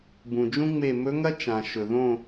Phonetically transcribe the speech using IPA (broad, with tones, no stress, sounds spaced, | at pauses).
b ũ˨ d͡ʒ ũ˥ ŋ͡m e˦˨ m ɵ˧˥ ŋ ɐ˥ t͡ʃ ã˨ ʃ ɵ˨ ð õ˦˨